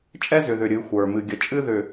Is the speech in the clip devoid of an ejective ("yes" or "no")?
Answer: no